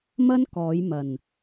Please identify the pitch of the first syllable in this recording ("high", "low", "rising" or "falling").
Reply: high